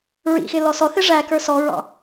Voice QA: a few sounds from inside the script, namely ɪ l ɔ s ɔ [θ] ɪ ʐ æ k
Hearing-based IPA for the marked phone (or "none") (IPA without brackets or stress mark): θ